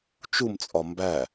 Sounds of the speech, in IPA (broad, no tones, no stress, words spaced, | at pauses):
t͡ʃumt͡sʼɒ mbæ